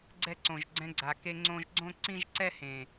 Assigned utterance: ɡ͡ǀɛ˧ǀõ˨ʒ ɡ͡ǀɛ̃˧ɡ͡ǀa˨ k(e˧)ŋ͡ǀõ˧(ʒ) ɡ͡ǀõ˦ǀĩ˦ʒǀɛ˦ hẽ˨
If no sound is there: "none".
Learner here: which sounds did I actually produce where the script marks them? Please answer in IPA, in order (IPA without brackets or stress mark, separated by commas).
e˧, ʒ